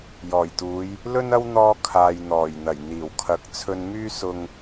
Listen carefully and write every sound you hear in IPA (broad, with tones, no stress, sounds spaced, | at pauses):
j ɔː˨˩ j t̪ uː˨˧ j | l ɵ˥ n ɐ˥ w n̪ ɔː˧ kʰ aː˨ j n̪ ɔː˨˩ j n̪ ɐ˨˩ j n̪ iː˨˩ w kʰ ɐ˨˥ k̚ t͡sʰ ɵ˧ n m yː˥ s ʊ˧ ŋ